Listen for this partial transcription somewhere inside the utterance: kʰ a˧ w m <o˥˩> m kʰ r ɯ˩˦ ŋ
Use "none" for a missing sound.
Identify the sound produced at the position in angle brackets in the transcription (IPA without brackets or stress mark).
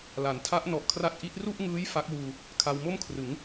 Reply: o˥˩